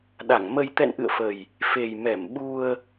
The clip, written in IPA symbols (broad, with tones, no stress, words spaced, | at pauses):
ɗa˧˩ŋmə˧j t̪ɛ̰˧˨nʔɨ̰˧˨ə̯fə˨˩j | fe˨˩j mɛ˧˩mɓu˧ə̯